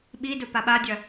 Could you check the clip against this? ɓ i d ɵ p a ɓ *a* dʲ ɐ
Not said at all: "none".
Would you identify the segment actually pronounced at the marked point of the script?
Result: a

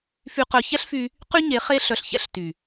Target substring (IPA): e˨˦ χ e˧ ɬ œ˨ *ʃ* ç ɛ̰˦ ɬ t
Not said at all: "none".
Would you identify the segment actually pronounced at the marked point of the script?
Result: ɬ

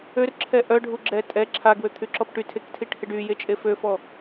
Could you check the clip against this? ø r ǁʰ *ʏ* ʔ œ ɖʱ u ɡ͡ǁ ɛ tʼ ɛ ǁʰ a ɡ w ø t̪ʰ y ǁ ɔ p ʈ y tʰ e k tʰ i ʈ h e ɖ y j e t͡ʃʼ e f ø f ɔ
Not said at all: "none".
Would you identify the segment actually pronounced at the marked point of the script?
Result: ɛ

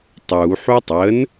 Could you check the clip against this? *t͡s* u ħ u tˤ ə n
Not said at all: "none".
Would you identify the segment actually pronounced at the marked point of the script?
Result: tˤ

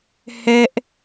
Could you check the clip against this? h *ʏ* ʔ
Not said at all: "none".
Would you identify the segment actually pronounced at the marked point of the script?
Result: ɛ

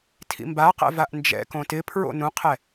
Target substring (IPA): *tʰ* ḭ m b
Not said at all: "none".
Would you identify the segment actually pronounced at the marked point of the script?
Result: tʰ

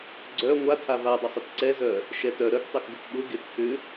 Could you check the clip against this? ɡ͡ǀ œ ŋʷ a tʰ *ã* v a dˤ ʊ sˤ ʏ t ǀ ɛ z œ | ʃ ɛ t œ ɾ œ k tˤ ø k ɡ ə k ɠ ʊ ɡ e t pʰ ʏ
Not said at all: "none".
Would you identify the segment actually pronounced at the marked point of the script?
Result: a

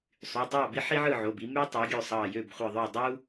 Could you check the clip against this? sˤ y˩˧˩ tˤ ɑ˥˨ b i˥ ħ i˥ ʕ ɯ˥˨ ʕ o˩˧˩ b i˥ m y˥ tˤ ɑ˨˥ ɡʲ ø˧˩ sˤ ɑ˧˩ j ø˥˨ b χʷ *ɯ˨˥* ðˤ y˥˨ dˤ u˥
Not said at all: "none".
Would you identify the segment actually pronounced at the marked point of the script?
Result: ɯ˧˩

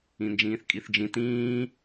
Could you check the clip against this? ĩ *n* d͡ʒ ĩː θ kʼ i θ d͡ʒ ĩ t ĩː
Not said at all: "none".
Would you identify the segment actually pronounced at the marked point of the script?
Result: n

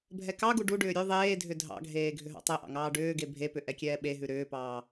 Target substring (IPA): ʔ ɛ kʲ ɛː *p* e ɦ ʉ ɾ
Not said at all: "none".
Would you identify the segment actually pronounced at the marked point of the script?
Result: ɓ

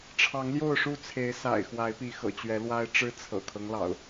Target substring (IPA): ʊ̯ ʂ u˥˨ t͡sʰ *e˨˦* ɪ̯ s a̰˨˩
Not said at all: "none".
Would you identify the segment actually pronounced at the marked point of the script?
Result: e˨˦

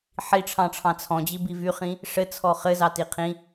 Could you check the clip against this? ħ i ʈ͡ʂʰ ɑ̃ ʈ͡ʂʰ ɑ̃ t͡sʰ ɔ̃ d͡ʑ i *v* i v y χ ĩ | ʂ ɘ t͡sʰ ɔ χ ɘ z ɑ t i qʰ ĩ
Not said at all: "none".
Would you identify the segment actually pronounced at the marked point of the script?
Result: b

